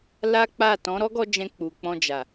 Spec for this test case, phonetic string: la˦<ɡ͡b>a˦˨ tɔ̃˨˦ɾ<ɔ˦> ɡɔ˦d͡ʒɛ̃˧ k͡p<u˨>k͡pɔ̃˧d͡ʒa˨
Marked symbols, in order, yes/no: no, yes, yes

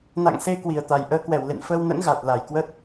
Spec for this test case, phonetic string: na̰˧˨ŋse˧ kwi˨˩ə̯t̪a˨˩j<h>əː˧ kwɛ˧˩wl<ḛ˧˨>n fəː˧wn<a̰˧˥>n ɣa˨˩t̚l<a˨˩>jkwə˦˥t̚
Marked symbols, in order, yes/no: no, yes, no, yes

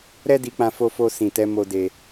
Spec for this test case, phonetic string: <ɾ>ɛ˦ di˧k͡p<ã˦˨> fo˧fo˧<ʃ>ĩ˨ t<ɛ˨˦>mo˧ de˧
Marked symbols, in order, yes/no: yes, no, no, yes

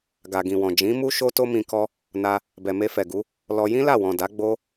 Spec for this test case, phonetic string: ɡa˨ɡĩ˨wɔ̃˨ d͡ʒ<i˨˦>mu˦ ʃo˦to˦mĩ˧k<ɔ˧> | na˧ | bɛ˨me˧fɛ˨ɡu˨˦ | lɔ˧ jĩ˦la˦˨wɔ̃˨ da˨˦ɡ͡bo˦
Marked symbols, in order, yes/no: no, no

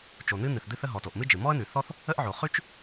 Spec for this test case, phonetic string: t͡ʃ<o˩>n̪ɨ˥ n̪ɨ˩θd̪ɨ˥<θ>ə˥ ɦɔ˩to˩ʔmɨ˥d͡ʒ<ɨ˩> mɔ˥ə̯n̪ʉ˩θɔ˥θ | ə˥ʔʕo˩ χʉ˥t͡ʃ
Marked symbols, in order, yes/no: yes, yes, yes

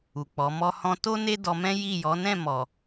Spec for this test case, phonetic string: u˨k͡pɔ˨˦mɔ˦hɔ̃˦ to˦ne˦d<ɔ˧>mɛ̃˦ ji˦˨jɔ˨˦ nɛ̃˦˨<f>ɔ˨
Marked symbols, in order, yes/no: yes, no

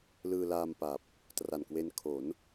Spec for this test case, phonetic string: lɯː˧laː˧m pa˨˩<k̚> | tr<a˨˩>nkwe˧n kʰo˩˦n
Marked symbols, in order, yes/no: no, yes

